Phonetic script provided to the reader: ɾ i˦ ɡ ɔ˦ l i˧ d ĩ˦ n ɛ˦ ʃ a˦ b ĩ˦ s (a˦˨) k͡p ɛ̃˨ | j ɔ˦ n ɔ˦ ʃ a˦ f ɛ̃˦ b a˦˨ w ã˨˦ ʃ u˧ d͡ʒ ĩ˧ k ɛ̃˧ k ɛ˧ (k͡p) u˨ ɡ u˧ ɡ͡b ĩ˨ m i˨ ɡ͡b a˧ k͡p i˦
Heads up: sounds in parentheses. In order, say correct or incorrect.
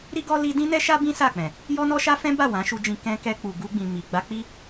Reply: correct, correct

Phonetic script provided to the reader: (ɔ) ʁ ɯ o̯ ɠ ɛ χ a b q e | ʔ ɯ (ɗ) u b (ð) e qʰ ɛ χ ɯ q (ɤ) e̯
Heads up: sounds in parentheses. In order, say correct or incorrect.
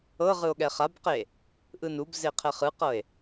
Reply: incorrect: ɤ, incorrect: n, incorrect: z, correct

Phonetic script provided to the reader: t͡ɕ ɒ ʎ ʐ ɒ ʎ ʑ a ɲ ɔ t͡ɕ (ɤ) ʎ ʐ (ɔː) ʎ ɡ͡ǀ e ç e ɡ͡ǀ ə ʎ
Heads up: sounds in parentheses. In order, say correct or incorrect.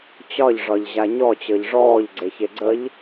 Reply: correct, correct

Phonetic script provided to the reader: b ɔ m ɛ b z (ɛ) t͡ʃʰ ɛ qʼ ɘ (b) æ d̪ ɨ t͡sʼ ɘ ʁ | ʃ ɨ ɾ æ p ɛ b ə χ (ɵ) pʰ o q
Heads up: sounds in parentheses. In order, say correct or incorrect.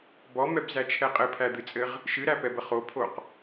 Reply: incorrect: æ, incorrect: pʰ, incorrect: o

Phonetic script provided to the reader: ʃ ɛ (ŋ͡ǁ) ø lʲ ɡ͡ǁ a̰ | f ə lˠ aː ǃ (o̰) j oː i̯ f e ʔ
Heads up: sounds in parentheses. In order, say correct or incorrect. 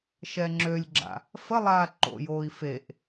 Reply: correct, correct

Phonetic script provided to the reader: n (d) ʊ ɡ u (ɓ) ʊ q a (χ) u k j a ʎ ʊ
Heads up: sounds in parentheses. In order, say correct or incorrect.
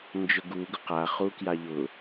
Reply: incorrect: d͡ʒ, incorrect: ɡ, correct

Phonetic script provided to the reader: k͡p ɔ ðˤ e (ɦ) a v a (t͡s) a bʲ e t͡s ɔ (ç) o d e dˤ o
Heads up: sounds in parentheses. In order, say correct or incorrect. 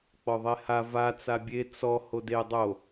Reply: incorrect: h, correct, incorrect: h

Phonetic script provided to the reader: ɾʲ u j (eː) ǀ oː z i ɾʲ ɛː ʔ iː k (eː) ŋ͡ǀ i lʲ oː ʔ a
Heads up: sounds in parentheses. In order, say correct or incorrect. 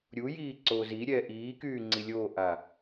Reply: incorrect: iː, incorrect: yː

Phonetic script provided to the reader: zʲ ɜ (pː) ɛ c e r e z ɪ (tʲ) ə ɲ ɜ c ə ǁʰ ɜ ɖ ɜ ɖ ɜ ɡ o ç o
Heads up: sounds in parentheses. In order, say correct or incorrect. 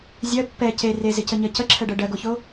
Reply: correct, incorrect: c

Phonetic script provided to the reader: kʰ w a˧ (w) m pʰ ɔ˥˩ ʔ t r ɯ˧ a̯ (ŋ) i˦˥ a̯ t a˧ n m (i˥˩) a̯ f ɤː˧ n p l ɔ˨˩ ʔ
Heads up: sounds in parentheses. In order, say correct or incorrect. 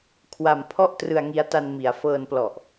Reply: incorrect: none, correct, incorrect: i˩˦

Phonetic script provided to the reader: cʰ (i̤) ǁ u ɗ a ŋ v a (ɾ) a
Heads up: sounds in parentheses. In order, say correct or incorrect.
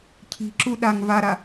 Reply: correct, correct

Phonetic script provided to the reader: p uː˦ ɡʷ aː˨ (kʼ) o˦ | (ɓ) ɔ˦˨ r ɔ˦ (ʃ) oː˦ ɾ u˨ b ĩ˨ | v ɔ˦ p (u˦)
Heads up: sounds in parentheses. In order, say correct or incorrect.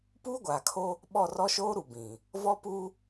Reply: incorrect: kʰ, correct, correct, correct

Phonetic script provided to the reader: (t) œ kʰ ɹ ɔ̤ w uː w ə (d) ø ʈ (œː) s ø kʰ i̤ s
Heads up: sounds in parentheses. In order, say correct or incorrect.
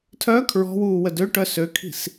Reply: incorrect: tʰ, correct, incorrect: œ

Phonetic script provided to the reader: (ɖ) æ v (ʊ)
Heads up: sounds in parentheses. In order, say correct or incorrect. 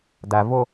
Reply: incorrect: d, correct

